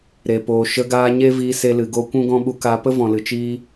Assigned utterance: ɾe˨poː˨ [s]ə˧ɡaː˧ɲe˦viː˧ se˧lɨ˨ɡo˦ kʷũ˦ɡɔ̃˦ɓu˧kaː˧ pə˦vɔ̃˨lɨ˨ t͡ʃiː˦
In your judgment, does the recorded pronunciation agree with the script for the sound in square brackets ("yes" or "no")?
no